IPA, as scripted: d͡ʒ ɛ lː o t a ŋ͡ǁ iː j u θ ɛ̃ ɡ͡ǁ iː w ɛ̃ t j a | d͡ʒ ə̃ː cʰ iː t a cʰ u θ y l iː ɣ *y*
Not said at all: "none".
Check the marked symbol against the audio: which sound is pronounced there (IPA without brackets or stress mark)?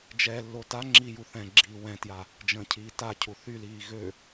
ø